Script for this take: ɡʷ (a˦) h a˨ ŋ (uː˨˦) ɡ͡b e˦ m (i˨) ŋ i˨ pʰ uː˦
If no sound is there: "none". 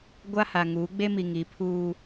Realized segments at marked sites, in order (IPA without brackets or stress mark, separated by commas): a˦, uː˨˦, i˨